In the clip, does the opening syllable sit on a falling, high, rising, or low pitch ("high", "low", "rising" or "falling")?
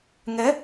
rising